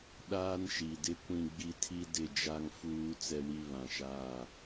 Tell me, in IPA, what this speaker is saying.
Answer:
ɗ aː˦ n ʃ i˨ d ɪ˦ kʷ ĩ˦ ɡ͡b i˦ tʰ i˦ d ɪ˦˨ d͡ʒ a˦ ŋ f uː˦ t͡s ɛ˦ w i˦ β ã˨ ʃ aː˦˨

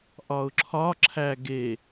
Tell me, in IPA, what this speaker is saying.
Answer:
ʔ ɒ ʊ̯ ǁʰ ɒ ǁʰ æ ɡ e

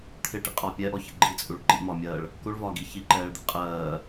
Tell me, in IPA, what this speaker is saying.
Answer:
t̪ʰ ɪ ʈ ḭ qʼ ɒː pʲ ɛ ʔ ɔ ç ə ɡ͡ǃ i t͡sʼ u ɭ ǃ ḭ m ɒː mʲ ɜː ɭ | k u ɭ v ɒː ɡ i ç i ǃ ɛː ɭ d̪ ḭ qʼ ɜː

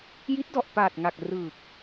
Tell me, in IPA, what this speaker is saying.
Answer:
j i˦˥ t̚ d ɔ˨˩ ʔ p aː˨˩ t̚ ŋ a˨˩ k̚ r ɯː˨˩ k̚

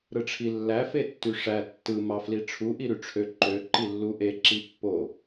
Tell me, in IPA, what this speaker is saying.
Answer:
ɾ ɯ ʈ͡ʂʰ i lː æ f e tː y ʂ æ tː ɯ m ɑ f l i ʈ͡ʂʰ u ʔ i ɾ y ʈ͡ʂʰ ø ǃ ø ǃ i lː u ʔ e ǁ i pː o

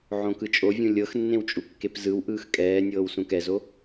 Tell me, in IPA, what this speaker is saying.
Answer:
ʕ õ k ɯ t͡ʃʼ o vʲ ũ lʲ ɤ x nː ẽ w t͡ʃʼ u kː e p z ɯ w ʔ ɯː x kʼ ɛː nʲ ɤː w s ũ k ɛ z o

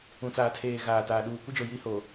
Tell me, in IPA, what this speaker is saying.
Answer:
ũ˨ t͡s aː˨ tʰ eː˨ ɣ aː˨ t aː˨ ɗ uː˨ kʷ ɪ˦ d͡ʒ o˨ j i˦ h o˨

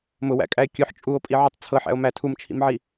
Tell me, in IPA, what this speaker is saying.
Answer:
m ʊ w æ̰ kʼ æ e̯ kʲ ʊ ħ t͡ʃʼ u o̯ pʼ i ʕ u tˤ t͡sʰ ɤ ħ æ̰ o̯ m æ tʰ u m t͡ʃʰ ḭ m ʕ i

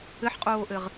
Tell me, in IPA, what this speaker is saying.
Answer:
ɘ ħ qʼ oː ʔ ɘ ʁ

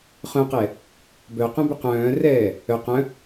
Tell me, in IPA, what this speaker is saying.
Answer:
χ œ̃ q ɛ | b œ q œ̃ b ʏ q œ̃ː r ɛː | œ q œ̃

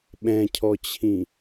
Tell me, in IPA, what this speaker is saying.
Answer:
ɓ ɛ̃ cʰ ɔ t͡ɕʰ ĩ

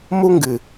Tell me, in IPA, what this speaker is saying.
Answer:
m u˦ ŋ ɡ ɨ˨

